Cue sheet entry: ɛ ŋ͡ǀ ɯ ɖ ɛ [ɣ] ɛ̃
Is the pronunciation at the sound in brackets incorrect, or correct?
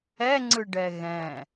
correct